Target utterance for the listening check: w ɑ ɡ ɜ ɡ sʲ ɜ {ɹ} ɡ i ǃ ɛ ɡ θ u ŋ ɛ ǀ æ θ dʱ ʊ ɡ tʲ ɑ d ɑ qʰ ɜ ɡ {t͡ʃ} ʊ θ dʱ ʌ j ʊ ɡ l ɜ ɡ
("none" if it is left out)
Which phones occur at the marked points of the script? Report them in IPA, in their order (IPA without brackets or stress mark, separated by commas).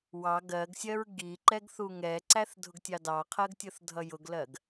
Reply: ɹ, tʲ